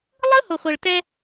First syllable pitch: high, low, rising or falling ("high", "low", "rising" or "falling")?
high